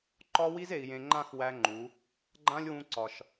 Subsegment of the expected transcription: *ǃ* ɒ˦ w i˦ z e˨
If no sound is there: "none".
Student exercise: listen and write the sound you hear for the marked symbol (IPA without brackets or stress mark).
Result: ǃ